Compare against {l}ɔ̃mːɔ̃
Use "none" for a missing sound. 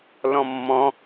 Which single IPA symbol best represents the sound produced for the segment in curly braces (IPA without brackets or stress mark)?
l